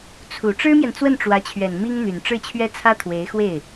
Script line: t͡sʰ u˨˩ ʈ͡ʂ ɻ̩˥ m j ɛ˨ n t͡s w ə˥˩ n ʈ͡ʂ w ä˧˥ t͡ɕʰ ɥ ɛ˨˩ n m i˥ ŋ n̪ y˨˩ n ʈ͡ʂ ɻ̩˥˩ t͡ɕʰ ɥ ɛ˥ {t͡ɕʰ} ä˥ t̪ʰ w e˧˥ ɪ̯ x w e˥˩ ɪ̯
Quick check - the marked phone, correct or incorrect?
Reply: incorrect